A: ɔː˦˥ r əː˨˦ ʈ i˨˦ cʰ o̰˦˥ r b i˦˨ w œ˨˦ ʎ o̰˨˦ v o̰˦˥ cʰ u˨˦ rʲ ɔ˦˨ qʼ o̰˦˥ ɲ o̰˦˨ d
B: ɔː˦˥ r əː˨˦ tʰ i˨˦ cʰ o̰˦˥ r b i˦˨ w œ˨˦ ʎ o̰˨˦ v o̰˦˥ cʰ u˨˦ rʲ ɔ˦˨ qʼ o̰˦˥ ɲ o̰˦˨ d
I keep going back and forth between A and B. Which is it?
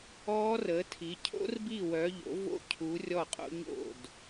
B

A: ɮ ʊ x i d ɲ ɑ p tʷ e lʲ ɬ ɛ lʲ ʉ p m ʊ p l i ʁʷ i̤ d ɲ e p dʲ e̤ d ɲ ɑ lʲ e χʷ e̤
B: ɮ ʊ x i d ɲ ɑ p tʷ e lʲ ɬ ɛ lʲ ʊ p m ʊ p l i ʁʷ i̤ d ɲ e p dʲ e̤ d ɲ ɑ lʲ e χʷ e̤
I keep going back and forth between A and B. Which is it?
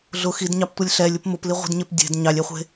B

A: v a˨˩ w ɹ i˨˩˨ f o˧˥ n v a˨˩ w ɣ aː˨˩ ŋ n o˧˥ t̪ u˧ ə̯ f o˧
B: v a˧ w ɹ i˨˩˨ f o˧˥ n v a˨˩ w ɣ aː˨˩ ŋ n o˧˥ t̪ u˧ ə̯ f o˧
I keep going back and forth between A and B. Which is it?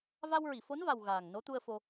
B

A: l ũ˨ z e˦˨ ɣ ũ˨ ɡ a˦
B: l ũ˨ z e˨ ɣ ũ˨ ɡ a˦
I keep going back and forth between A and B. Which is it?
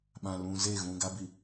A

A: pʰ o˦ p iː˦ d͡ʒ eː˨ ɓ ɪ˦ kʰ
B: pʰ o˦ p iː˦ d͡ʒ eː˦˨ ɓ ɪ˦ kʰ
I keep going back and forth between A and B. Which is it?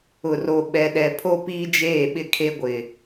B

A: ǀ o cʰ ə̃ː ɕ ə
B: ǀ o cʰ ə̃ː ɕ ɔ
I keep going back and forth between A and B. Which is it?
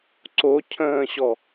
B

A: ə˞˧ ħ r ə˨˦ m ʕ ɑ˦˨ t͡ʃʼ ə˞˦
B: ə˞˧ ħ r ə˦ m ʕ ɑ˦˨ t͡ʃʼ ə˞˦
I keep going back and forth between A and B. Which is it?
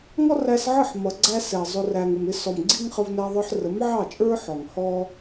A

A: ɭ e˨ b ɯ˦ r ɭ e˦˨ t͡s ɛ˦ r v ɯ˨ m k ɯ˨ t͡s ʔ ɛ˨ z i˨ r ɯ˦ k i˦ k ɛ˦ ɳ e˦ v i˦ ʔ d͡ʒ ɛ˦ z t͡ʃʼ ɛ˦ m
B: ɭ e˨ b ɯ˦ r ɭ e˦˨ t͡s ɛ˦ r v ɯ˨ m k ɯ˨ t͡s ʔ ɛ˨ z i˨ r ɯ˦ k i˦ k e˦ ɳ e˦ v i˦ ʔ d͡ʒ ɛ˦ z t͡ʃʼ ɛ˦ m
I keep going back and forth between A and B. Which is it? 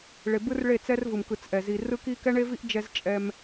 A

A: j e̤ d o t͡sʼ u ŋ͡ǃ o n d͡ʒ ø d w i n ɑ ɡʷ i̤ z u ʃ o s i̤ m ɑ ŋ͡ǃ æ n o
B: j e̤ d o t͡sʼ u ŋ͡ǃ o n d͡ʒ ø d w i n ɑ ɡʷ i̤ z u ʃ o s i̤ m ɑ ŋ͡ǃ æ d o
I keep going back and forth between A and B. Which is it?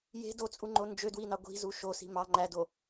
B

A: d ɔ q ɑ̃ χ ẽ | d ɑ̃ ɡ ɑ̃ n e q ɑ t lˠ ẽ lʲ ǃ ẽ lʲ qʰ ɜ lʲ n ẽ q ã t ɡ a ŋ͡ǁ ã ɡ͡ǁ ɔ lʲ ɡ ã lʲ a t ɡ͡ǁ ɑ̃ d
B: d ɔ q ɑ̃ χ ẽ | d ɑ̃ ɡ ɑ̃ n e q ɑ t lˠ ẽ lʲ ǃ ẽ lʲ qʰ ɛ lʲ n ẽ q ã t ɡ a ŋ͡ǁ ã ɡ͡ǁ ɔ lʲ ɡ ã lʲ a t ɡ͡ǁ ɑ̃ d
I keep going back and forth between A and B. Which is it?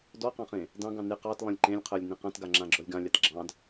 A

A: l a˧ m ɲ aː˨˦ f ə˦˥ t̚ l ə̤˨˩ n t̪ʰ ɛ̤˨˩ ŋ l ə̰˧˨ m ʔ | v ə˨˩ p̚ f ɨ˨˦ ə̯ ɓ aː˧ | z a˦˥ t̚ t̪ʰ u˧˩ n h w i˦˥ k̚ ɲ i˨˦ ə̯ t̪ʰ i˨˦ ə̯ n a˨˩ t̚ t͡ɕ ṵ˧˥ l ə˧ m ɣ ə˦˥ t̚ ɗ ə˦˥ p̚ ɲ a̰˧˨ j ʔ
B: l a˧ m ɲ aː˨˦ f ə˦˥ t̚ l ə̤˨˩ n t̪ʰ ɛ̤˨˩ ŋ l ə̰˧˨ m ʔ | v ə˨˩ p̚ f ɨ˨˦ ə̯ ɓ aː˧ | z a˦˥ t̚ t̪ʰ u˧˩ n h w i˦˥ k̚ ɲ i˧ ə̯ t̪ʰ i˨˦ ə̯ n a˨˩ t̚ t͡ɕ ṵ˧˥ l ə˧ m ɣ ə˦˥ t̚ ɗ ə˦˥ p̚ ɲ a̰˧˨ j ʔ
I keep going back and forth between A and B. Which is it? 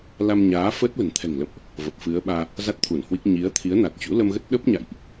A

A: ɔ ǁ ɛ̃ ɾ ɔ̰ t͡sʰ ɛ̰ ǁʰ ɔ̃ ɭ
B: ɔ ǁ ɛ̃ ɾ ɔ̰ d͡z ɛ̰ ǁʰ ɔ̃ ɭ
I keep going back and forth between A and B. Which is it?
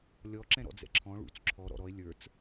B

